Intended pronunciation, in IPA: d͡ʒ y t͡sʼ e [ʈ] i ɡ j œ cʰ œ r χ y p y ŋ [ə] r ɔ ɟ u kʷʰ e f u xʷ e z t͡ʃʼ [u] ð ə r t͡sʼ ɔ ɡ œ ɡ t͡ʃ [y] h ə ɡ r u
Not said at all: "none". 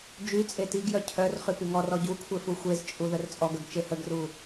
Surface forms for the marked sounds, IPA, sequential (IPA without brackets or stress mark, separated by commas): t, ɔ, u, e